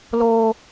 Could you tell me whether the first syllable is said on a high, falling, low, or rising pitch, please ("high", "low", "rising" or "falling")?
low